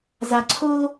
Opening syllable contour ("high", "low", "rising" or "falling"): low